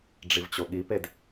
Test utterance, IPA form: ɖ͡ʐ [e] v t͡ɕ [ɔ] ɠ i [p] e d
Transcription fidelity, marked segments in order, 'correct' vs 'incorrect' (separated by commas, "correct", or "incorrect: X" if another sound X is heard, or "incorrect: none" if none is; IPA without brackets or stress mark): incorrect: i, incorrect: o, correct